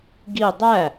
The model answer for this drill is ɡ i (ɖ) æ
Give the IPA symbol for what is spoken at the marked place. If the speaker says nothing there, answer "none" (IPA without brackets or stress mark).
dˤ